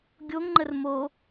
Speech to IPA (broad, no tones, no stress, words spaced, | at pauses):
ɡʲoŋŋ͡ǃər mo